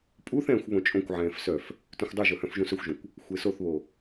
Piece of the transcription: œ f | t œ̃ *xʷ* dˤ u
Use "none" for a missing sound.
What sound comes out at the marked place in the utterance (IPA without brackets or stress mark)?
xʷ